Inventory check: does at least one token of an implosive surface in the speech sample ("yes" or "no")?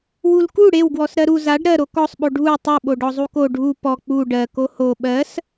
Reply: yes